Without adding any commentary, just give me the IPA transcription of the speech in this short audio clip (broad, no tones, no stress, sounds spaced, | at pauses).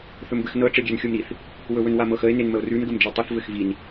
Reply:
θ ɵ m b ɘ x n ɤ ʈ͡ʂ ɛ ɡʲ ɛ n xʲ o m ɾ i θ | w ɵ w ɵ n w a m ɤ x ə e̯ n e n m ə o̯ r ʉ n ɡ ə m d͡ʒ i tˤ ɘ θ v ɘ x v i n